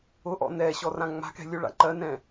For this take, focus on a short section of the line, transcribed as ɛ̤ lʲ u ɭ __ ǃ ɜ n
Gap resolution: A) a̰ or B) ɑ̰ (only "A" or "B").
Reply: A